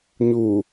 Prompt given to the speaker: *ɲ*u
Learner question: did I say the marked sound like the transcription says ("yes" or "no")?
yes